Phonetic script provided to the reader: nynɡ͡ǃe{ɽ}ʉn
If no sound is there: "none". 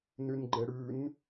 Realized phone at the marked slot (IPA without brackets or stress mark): ɽ